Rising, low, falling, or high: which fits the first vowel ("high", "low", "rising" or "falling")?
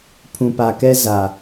low